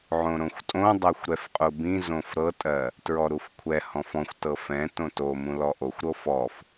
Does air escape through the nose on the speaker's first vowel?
yes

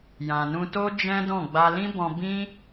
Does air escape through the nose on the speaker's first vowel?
yes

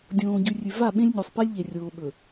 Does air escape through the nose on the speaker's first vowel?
yes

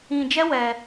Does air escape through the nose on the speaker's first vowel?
yes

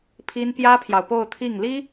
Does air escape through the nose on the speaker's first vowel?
no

